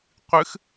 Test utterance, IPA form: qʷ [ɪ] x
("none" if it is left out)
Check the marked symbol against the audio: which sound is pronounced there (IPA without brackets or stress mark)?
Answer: ɨ